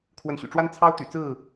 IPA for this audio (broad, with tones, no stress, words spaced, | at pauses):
kʰwə˨˦nɕy̰˨˩ʈ͡ʂwa˦n t͡sʰɑ˦ʊ̯t̪y̰˨˩t͡sɹ̩˥˨